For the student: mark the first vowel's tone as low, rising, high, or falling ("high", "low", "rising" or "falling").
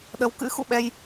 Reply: rising